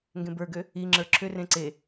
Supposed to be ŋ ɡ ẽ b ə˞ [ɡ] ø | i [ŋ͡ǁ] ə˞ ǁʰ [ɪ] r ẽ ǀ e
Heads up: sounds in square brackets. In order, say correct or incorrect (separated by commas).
correct, correct, incorrect